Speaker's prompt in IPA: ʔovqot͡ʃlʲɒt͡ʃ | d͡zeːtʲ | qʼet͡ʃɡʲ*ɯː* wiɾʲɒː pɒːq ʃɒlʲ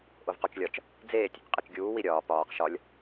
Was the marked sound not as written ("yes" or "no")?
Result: yes